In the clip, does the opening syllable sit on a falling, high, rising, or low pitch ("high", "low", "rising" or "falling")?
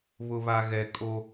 low